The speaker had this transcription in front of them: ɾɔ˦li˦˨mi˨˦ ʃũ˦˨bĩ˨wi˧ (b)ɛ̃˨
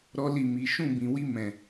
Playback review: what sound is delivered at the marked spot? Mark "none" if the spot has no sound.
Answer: m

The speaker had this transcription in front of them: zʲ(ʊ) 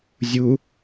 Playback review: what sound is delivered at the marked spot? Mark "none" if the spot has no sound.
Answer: u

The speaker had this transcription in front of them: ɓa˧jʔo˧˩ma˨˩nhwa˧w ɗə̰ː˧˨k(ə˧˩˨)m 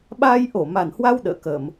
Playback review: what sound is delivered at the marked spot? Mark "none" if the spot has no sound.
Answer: ə˧˩˨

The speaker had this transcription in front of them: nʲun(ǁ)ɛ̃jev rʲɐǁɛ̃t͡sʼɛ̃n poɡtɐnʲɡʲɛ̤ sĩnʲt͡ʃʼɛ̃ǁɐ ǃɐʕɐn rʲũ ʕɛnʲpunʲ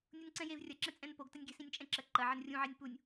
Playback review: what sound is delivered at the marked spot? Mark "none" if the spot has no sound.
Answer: ǀ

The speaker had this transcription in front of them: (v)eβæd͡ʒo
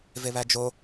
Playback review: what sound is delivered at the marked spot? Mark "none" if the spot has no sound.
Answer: v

